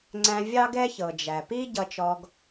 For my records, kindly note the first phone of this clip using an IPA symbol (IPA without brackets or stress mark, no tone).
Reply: ŋ͡ǀ